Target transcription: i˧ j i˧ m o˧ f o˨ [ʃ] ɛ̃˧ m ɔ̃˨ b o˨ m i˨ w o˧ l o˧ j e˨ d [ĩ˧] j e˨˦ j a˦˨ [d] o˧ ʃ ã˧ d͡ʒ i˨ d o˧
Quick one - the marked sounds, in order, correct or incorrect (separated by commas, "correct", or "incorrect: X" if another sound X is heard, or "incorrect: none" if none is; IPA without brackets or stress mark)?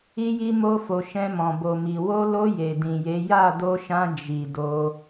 correct, incorrect: ĩ˨, correct